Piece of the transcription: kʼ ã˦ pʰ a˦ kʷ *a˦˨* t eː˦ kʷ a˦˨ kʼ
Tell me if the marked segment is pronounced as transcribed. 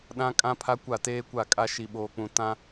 yes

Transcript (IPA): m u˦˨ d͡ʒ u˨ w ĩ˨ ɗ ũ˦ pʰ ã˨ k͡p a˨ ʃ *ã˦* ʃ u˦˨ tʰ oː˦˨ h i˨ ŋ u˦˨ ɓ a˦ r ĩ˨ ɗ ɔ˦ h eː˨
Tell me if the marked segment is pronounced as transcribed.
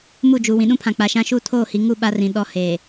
yes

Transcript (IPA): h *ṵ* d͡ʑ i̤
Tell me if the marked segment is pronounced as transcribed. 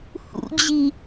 yes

